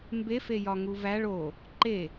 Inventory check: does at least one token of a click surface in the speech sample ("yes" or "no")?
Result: yes